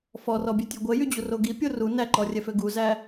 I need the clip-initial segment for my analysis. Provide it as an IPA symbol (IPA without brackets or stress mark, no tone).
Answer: f